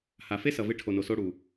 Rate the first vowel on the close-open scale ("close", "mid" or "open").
open